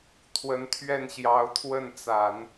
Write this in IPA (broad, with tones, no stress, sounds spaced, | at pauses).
t̪ʰ w ə˧˥ n t̪ʰ ɥ ɛ˥˩ n ɕ j ɑ˧˥ ʊ̯ t̪ʰ w ə˥˩ n t͡s a˨˩˦ n